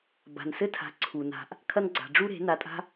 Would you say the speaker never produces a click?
no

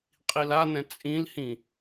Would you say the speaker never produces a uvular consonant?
no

